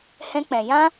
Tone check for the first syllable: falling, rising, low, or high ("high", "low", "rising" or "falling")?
high